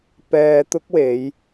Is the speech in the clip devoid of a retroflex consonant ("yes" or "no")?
yes